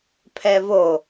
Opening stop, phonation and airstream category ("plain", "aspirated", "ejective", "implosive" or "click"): aspirated